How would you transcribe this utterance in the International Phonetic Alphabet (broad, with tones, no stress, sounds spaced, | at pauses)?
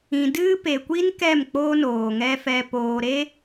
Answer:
ĩ˨ d ɨ˦ p e˨ kʷ i˦ n k ɛ˦˨ m k͡p oː˧ n oː˨ ŋ ɛ˧ f ɛ˧ p oː˧ ɾ e˧